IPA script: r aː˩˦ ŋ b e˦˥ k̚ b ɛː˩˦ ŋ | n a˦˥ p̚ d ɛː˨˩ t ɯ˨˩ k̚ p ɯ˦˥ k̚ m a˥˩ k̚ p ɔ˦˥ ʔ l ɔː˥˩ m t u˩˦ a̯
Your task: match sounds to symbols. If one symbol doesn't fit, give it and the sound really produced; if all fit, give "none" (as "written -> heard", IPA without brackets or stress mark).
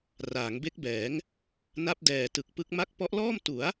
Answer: none